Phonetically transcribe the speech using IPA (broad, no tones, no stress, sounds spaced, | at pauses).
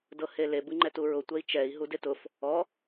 d ɤ h e l e b ɯ ŋ͡ǃ ɛ t u ɹ ʊ tʷ ɛ i̯ t͡ʃ ɛ i̯ ɦ u d e t ʊ f | ɔ